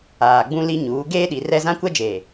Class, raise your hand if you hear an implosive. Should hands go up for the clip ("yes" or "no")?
yes